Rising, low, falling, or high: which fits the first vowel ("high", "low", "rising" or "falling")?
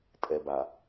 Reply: low